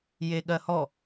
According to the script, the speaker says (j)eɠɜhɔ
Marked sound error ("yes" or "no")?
no